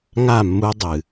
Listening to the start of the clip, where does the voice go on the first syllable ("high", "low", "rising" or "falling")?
falling